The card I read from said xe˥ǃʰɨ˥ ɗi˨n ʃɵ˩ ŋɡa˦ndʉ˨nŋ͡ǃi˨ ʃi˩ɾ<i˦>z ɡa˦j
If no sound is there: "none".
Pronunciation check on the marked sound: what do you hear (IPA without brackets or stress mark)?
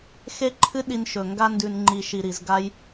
i˩